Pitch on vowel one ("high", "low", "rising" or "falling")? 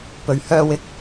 low